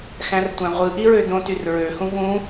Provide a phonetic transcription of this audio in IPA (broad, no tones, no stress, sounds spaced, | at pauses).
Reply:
x æ̃ r tʷ æ̃ ʁʷ ɯ ʔ i ɹ ø d õ t y r ɹ ø h ũ v ũ